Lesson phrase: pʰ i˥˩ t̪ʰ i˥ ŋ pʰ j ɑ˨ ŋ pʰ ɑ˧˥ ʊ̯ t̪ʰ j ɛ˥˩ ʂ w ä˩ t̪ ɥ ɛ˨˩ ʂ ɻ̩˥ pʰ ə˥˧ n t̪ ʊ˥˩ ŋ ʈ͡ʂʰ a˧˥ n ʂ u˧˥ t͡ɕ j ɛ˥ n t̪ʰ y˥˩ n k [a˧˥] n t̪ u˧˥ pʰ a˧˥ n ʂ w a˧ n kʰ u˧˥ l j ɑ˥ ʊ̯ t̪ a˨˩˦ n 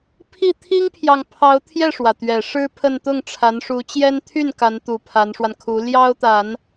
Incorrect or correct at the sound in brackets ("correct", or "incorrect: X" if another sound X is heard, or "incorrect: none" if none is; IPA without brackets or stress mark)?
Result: correct